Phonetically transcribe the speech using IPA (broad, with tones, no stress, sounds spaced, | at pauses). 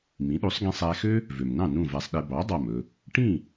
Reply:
m ĩ˩˥ ɗ u˩˥ sˤ ɡ ĩ˧ sˤ æ˧ x ø˥ | v ø˩ m n ɑ̃˥˩ n ũ˥˩ v æ˧ sˤ ɗ e˧ b ɑ˩˥ dˤ ɑ˥˩ m ɵ˧ | ʈ ĩ˥˩